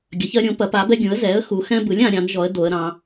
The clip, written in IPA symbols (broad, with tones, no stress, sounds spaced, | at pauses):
ɡʲ ɐ˩˥ ç ɜ˦ ɾʲ õ˩˥ p ɐ˩˥ p a˩˥ b ɛ˦ ɡʲ ũ˩˥ ə̯ z ɛ˩˥ ə̯ x u˩˧ x ɛ̃˦ b ɯ˩˥ lʲ ã˩˧ ɾʲ ɑ̃˩˥ n ʒ ɔ˩˥ ə̯ d o˩˧ ə̯ ɾ ɑ̃˩˧